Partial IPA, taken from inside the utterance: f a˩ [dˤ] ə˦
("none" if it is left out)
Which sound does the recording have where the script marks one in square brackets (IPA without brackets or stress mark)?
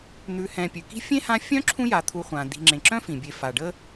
ɖ